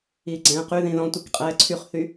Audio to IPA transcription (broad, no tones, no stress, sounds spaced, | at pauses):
iː ɡ͡ǀ ɛ̃ː q y ð ĩ ð ɔ̃ tʷ i k qʼ ɛː ǀʰ y χ θ y